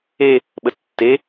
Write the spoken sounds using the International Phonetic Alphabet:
e | ɓ ə tː e

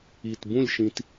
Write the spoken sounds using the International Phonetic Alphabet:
i˨˩ t b ũ˥˨ lʲ ʃ ĩ˧ t

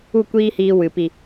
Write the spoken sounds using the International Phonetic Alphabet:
u˦˨ kʷ iː˦ h iː˧ w ɨ˨ p i˨

